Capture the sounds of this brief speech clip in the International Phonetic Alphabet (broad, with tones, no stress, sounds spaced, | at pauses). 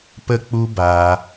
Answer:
p ə˦ k͡p u˦ b aː˧